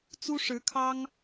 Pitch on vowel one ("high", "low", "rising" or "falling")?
high